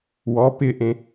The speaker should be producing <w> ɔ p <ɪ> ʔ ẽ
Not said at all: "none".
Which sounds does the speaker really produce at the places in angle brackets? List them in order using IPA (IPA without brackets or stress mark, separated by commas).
w, ɪ